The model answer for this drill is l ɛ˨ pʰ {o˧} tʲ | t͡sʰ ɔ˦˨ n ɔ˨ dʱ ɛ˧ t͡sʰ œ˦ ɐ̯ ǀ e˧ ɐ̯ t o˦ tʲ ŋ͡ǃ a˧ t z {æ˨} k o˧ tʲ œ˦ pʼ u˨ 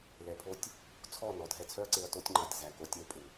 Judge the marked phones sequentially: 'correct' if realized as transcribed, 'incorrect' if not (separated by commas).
correct, correct